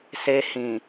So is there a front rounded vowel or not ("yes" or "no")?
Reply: no